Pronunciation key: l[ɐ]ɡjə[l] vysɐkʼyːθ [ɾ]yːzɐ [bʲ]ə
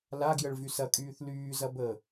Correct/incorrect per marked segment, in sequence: incorrect: a, incorrect: ɭ, incorrect: l, incorrect: b

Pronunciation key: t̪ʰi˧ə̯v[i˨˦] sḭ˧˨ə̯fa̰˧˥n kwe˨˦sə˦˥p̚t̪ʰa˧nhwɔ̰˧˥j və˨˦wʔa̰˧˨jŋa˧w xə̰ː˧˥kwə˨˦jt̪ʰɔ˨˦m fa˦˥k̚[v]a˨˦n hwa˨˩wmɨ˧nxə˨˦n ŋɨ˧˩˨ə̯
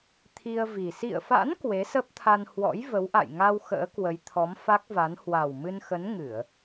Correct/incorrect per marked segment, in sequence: incorrect: i˨˩, correct

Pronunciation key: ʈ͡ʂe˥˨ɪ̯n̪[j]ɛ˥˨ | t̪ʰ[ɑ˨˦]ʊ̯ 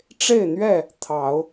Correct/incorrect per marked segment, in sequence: incorrect: ɥ, correct

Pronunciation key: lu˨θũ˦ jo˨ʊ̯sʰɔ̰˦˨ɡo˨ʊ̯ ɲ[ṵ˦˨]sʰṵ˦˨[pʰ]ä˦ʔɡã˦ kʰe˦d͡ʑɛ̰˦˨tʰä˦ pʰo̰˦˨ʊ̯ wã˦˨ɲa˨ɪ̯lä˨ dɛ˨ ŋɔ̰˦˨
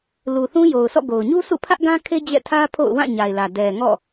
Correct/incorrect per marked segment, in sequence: incorrect: u˦, correct

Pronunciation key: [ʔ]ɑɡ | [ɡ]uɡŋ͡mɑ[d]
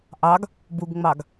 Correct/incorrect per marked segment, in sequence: correct, incorrect: b, incorrect: ɡ

